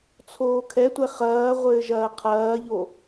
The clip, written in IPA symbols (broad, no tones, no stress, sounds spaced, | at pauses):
t͡sʰ oː kʰ ɛ tʷ ɛ χ ɐː ʁʷ ɘː ʒ ɐː qʰ ɐː ʎ o